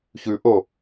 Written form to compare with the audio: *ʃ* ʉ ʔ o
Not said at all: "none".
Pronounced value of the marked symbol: ç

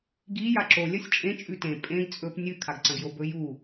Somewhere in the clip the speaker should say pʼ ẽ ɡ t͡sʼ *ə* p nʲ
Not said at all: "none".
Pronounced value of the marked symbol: ɵ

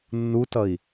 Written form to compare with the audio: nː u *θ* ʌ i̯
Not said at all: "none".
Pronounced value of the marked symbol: t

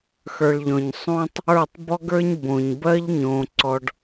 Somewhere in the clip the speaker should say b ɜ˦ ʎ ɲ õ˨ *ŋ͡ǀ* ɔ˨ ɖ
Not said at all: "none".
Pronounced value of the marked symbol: ǀ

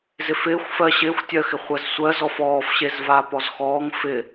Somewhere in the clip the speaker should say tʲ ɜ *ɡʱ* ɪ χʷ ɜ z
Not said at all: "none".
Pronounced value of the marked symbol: x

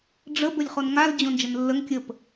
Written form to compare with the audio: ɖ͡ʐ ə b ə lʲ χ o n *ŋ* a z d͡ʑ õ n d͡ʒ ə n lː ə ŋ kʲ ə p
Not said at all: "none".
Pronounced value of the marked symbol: ŋ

